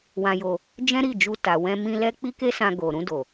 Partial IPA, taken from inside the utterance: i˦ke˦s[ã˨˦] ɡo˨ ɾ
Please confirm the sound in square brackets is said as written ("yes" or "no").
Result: no